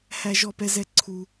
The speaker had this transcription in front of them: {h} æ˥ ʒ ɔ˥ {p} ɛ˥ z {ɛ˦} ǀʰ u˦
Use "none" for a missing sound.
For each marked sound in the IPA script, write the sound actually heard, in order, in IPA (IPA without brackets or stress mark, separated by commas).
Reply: h, p, ɛ˦